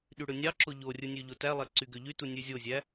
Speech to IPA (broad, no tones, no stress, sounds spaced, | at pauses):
ɗ y ɽ ɯ nʲ ɑ ǁ o ʎ o rʲ ɯ nʲ ø ʎ o t æ lˠ æ ǀ y ɡ ø ʎ y t u nʲ ø zʲ o zʲ æ